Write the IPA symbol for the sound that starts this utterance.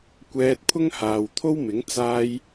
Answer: kʷ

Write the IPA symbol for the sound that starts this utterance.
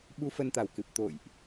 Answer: ɓ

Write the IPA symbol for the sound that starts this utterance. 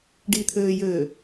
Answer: ɖ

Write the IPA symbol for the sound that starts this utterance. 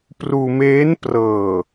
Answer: p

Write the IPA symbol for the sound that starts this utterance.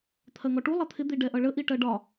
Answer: t̪ʰ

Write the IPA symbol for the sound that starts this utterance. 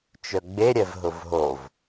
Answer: t͡ʃ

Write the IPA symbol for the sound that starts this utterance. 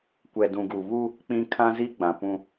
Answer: kʷ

